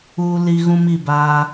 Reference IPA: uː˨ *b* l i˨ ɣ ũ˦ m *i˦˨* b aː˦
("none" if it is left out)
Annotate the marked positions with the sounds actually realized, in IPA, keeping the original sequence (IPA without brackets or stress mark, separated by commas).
none, i˦˨